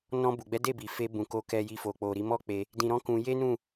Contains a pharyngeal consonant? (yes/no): no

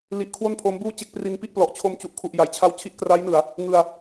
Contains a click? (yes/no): no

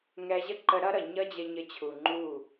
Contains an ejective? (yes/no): no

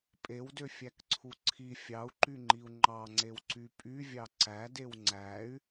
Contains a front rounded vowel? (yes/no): yes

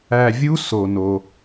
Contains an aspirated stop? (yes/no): no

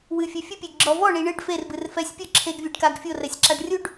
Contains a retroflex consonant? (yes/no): yes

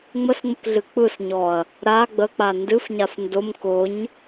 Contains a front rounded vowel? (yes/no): no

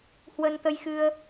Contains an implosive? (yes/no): no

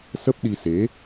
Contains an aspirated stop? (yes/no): no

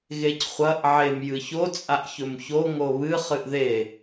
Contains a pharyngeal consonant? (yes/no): yes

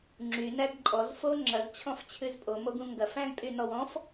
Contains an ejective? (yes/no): yes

